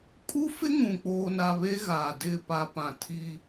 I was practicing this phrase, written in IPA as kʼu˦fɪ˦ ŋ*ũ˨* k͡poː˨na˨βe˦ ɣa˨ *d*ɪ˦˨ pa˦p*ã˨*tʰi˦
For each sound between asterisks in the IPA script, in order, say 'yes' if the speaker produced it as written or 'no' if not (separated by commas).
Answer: yes, yes, yes